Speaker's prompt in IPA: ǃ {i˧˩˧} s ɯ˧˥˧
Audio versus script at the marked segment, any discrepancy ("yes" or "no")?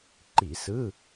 no